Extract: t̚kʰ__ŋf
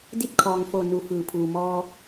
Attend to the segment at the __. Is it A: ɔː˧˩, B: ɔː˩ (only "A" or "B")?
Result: B